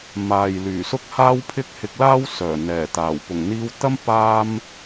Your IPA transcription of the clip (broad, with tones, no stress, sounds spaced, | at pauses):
m aː˨ j l yː˨˩ s ʊ˥ k̚ h aː˥ w pʰ ɪ˥ k̚ h ɪ˧ k̚ l aː˥ w s œː˨˩ n̪ ɛː˨˩ t̪ aː˨˩ w p ʊ˨˩ ŋ n̪ iː˧ w t̪ ɐ˥ m p aː˥ m